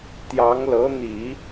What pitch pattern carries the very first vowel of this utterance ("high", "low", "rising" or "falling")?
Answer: rising